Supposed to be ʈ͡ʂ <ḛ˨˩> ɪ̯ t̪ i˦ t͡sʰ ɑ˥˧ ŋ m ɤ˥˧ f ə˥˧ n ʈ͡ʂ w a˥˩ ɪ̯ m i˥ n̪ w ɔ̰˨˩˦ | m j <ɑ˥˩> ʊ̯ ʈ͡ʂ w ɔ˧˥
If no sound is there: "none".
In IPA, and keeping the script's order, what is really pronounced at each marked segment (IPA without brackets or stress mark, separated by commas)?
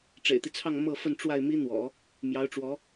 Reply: ḛ˨˩, ɑ˧˥